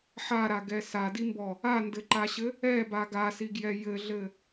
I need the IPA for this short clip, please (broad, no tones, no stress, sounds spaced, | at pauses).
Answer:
ħ a ɾ a ɡ ɛ s a d i m b ɔ | a n d ɘ ǃ a ɕ ɘ | ɛ b a ɡ a s i ɡ j ɛ j ɘ ɮ ɘ